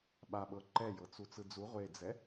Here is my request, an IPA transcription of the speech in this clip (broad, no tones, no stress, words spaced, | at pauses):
ɓaɓɤ ǃɛjɤt͡su t͡sɯd͡zu ʁʷed͡zɛ